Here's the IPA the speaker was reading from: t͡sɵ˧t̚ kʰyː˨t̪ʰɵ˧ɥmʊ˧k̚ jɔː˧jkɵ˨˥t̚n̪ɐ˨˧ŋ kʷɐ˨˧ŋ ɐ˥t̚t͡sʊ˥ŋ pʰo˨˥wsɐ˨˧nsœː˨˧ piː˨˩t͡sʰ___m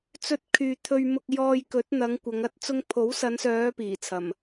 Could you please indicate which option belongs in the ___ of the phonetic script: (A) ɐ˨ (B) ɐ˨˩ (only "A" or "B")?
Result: B